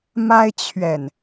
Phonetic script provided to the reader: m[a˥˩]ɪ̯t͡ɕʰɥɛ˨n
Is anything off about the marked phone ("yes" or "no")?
yes